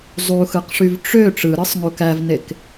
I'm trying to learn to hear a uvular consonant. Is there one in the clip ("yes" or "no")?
yes